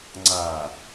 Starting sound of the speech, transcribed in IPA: ŋ͡ǀ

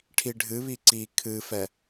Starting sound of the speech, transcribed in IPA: ʈʰ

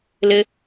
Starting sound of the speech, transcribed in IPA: l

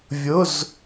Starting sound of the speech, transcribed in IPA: vʲ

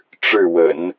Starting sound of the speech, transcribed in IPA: ʈ͡ʂ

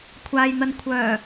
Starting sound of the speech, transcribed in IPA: kʷʰ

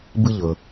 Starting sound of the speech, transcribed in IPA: b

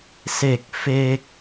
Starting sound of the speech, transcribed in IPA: s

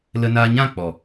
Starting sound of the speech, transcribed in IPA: l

